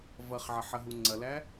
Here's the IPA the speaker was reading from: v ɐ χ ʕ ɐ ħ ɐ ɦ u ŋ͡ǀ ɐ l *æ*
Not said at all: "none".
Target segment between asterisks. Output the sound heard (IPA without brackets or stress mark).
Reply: æ